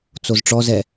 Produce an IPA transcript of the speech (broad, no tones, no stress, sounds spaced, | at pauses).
t͡s o z ʈ͡ʂ ɔ z ɛ